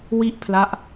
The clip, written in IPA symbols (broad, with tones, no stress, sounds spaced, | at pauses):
w i˥˩ ʔ pʰ l a˦˥ ʔ